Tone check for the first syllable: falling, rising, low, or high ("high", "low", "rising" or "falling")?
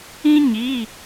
high